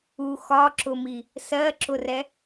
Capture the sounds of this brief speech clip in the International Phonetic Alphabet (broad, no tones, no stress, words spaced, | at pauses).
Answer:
u xɒǁʊmi | sɜǁʊrɛ